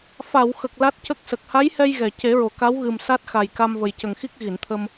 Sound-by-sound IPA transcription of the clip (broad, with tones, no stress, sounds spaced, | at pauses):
f a˨˩˨ w x ə˨˩ k̚ l a˦˥ t̚ c ə˦˥ k̚ s ə˨˩ k̚ h a˧˥ j h ɛ˧ j ɣ ɛ˨˩˨ c e˨˩˦ ɹ o˨˩˨ k a˧˥ w ɣ ɨ˨˩ m s a˦˥ t̚ x a˨˩ j k a˧ m v ə˨˩ j c ə˨˩ ŋ x i˦˥ k̚ ɣ i˨˩˨ n t̪ʰ ə˧ m